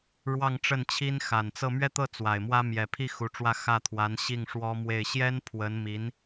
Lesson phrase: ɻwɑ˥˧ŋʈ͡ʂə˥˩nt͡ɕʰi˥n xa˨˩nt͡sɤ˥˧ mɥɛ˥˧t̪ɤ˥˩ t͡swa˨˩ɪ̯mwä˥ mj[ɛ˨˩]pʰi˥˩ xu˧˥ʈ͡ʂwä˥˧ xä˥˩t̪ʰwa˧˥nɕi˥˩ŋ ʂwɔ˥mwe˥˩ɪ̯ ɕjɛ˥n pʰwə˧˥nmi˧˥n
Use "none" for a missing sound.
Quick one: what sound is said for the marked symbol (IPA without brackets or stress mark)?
ɛ˨˩